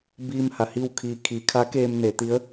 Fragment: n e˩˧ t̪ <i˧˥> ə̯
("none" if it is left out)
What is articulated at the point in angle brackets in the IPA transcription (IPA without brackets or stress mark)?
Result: i˧˥